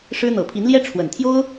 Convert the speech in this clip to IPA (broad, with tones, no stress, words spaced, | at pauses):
ʂɻ̩˥ n̪ɤ˨˩pʰi˧˥nljɛ˥ ʈ͡ʂʰwə˨˩nt̪ʰjo˥ʊ̯